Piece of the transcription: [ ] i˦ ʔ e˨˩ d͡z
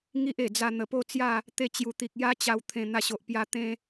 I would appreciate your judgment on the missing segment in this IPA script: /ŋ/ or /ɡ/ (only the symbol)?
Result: ŋ